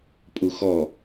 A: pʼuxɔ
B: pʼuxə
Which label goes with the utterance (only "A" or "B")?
A